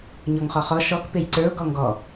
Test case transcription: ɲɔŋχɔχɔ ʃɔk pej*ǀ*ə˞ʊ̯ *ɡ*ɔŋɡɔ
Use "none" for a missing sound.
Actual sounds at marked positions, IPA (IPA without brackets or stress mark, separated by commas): ǀ, ɡ